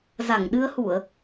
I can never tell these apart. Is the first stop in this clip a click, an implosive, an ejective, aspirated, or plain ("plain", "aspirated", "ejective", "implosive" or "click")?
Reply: implosive